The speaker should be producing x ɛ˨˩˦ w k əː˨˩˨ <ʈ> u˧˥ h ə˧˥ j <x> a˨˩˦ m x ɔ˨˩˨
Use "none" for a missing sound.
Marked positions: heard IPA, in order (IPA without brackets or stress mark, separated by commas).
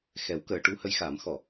ʈ, x